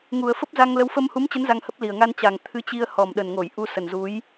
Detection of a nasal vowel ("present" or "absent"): absent